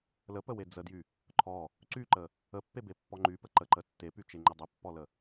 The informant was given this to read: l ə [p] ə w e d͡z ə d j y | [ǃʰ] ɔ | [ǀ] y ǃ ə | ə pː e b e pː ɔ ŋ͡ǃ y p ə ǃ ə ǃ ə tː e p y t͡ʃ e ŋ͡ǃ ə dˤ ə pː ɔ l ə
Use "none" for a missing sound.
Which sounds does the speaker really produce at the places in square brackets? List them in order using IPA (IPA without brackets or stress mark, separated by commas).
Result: p, ǃʰ, ǀ